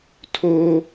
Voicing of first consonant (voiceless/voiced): voiceless